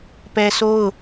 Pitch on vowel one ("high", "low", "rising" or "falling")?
high